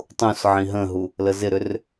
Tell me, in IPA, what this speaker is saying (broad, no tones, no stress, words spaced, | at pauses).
tˤũs ʕĩɦə̃ɦu | ləzɪɾʏr